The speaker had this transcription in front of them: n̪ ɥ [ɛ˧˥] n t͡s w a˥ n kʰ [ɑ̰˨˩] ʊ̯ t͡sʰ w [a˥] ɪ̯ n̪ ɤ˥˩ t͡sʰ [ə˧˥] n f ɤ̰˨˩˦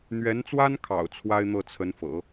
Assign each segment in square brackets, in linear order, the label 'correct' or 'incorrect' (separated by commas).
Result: correct, correct, correct, correct